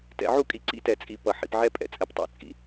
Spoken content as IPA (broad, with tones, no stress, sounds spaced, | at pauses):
t ɛ̰˨ ʕ u˦˨ kʼ i˨ ǀ ḭ˦ t ɛ˨ t͡sʼ i˨ p ʌ˨ ħ ḭ˨ p ʕ ɛ˦ pʼ ɛ̰˨ t͡sʼ ɛ˨ p tˤ ɛ̰˨˦ t͡sʼ ḭ˨